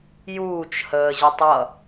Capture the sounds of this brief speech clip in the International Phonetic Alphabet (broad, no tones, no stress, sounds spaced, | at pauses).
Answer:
j uː t͡ʃ h əː ʑ ə tˤ ʌ